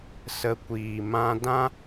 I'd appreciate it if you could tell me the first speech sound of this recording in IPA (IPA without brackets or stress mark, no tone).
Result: s